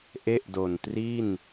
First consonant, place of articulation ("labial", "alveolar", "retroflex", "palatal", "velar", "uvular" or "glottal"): glottal